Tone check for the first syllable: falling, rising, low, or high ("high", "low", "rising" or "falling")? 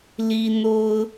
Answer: high